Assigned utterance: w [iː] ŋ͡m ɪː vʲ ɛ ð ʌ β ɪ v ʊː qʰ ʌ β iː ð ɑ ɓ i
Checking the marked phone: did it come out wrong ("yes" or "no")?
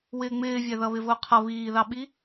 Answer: yes